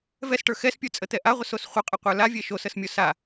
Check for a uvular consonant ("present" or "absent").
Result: present